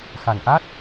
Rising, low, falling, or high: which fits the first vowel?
low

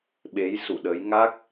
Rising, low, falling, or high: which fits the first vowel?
rising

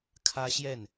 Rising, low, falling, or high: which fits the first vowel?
high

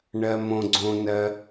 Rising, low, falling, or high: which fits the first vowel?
low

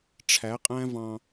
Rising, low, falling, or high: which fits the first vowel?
rising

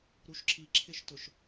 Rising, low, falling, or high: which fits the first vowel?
low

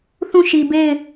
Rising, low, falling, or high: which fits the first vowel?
falling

